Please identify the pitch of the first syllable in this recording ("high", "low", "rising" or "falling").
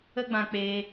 high